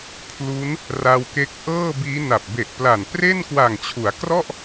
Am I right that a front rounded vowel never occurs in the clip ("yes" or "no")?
yes